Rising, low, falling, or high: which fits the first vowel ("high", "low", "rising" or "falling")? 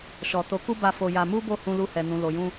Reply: low